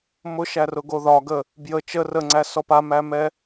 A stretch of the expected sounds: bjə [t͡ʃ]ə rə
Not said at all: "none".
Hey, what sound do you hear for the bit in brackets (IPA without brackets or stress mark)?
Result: t͡ʃ